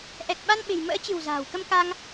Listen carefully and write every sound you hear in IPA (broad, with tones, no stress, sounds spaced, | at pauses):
ʔ ɛ˨˩ k̚ ɓ a˧ n ɓ e̤˨˩ j m ə̰ː˧˥ t͡ɕ ɨ̤˨˩ w z a̤ː˨˩ w k ə˧ m k a˧ ŋ